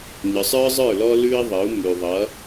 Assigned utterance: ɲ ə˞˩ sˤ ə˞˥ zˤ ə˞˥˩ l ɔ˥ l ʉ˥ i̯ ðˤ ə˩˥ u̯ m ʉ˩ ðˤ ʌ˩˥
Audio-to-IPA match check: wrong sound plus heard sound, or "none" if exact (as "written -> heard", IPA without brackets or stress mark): none